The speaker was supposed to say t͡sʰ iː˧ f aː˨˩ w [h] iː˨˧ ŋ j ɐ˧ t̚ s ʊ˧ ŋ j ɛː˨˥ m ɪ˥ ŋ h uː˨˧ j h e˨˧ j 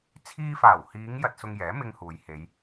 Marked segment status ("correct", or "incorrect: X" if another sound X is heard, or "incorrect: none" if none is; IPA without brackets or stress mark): correct